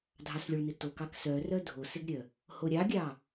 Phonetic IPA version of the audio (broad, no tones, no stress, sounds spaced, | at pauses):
dʱ ɑ s lʲ o ɭ n ɪ t o k ɑ k s œ r œ dʱ o s ɪ ɡ ɾʲ œ | h o ɾʲ ɑ ɡʲ ɑ